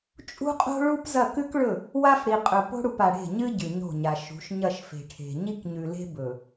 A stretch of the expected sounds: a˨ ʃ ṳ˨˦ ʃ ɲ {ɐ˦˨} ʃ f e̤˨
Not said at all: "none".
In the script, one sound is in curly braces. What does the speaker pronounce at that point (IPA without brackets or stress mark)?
ɐ˦˨